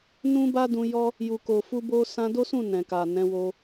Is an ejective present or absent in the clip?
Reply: absent